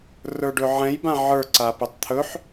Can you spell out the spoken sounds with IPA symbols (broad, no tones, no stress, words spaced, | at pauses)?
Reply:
rə˞ɖɵʕɛ̃j bãʕə˞ ǀapɵtˤt̪ʰɵħ